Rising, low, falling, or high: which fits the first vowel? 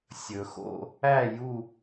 low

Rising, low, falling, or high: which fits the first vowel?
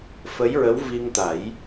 rising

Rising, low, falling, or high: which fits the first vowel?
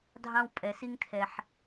high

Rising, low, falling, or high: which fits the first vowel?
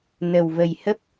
low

